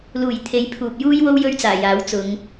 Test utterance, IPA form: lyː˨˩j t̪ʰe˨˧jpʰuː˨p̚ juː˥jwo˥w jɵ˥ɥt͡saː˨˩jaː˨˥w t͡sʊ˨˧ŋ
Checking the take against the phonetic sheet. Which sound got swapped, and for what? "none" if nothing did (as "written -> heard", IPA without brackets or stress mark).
yː˨˩ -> uː˨˩